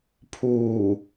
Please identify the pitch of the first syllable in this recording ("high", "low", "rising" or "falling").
low